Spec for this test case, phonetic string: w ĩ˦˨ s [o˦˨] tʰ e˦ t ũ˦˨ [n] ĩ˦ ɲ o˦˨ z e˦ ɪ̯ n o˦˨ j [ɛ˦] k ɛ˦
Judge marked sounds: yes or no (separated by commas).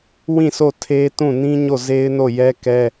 yes, yes, yes